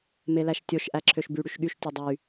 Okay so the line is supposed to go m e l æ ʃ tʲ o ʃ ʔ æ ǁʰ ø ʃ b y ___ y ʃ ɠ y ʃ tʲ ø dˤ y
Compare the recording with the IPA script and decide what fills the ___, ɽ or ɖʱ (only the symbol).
ɽ